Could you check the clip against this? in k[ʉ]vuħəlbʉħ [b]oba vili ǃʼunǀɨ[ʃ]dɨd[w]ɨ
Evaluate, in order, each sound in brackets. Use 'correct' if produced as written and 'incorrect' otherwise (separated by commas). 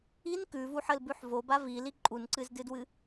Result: correct, incorrect, incorrect, correct